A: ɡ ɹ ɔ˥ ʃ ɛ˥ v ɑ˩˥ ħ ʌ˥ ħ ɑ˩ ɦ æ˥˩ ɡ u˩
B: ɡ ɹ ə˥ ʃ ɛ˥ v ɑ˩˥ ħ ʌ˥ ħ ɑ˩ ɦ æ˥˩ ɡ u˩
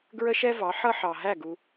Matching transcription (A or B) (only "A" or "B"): B